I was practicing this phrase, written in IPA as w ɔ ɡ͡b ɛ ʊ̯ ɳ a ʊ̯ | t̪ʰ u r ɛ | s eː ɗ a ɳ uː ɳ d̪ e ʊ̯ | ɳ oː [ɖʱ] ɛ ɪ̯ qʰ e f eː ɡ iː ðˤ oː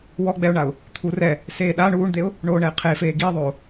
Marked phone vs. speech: incorrect: ɳ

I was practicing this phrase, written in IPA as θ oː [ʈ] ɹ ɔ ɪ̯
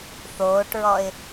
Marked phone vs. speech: correct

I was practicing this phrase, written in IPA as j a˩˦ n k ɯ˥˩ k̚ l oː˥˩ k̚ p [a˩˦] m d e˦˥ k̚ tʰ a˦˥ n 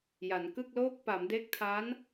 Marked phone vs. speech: correct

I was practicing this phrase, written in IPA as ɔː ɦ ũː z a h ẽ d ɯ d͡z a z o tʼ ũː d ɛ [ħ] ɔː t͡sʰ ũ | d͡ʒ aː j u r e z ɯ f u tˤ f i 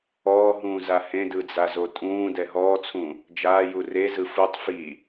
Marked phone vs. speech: incorrect: ɦ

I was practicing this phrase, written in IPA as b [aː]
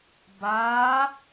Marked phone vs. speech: correct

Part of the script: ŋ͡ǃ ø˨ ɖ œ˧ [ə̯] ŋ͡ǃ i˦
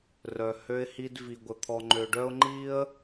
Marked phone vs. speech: incorrect: ʊ̯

